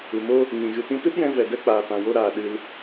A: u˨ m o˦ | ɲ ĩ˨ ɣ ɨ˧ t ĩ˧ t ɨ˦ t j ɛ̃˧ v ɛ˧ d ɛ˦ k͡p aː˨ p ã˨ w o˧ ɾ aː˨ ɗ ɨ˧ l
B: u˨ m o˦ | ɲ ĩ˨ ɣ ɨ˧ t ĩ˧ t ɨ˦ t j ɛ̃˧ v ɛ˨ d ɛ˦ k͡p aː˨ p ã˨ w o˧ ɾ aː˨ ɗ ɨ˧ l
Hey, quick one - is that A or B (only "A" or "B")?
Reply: B